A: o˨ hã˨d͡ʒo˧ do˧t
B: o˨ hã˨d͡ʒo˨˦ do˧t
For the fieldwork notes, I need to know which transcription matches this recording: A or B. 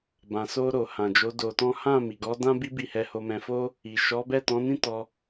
B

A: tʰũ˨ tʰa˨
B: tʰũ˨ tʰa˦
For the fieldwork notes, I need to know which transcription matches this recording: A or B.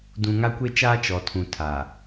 A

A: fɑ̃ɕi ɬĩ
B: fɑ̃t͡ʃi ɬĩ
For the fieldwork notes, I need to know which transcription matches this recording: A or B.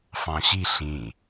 A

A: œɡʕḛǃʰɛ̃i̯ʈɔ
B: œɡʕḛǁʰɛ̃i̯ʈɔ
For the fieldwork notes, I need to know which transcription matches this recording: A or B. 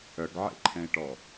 A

